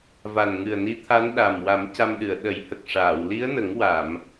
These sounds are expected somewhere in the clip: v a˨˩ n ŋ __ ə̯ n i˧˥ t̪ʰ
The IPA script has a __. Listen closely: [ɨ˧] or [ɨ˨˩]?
ɨ˨˩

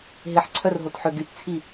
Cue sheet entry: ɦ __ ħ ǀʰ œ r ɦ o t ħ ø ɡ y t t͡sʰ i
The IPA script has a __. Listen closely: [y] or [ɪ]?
ɪ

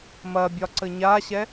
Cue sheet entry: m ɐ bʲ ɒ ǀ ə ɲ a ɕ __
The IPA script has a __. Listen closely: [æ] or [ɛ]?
ɛ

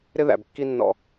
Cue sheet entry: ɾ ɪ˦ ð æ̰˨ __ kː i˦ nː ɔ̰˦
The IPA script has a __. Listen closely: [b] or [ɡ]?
b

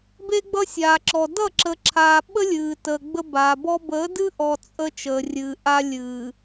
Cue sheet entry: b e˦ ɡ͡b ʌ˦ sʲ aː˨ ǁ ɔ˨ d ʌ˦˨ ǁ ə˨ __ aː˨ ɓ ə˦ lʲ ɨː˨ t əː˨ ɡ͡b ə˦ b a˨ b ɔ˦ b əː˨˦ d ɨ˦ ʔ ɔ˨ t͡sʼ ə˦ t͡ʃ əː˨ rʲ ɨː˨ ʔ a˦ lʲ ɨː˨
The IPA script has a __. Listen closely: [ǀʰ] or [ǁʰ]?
ǁʰ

